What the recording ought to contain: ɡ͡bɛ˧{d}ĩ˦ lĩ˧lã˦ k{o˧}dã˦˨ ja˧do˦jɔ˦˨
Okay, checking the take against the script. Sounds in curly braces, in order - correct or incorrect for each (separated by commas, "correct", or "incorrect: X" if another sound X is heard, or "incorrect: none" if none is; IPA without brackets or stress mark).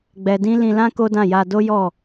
correct, incorrect: o˦